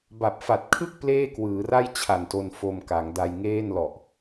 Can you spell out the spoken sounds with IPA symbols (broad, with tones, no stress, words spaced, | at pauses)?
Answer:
ba˨˩p̚fa˨˩t̚kʰɯ˥˩k̚ pleː˥˩kwɯː˩˦ra˥˩j t͡ɕʰa˨˩nto˧n fo˧mka˩˦ŋda˧j ŋeː˥˩n lɔ˨˩ʔ